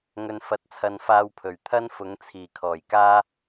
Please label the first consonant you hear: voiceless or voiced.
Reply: voiced